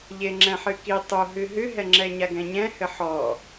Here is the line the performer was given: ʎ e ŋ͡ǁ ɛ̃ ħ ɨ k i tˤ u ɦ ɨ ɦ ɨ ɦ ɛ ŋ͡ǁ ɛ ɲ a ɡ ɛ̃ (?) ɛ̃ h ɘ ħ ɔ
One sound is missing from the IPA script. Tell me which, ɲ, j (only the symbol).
ɲ